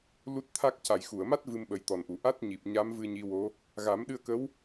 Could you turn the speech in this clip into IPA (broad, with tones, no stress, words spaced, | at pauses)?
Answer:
lu˦˥t̚t̪ʰa˦˥k̚ ca˨˩˨jxu˨˩˨ə̯ma˦˥t̚ vɨ˧mɓə˨˩˦jt̪ɔ˨˩nʔu˨˩˨ ʔa˦˥t̚ɲi˨˩p̚ ɲa˧˥mvɨ˧ ɲi˧˥wo˧˥ | ɣa˨˩˦mɗɨ˧ə̯kə˧˥w